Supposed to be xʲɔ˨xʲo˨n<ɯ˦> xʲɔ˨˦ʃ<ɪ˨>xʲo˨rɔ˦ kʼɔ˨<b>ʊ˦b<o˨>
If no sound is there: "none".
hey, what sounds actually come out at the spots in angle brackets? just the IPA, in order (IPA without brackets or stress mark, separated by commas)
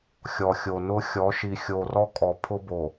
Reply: ʊ˦, i˨, pʰ, o˨